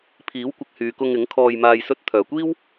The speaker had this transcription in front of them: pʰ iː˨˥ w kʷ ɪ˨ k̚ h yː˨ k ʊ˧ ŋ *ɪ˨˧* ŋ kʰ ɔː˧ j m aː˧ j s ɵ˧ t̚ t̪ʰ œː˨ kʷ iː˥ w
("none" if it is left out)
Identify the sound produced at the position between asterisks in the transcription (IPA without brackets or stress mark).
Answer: ɪ˨˥